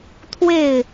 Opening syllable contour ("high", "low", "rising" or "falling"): falling